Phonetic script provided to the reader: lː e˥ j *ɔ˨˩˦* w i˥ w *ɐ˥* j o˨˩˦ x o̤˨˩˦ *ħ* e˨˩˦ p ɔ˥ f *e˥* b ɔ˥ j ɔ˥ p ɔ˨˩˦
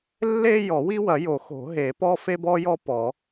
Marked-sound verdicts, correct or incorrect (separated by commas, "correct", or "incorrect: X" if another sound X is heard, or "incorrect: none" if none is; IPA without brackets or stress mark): correct, incorrect: ɐ˨˩˦, incorrect: ɦ, correct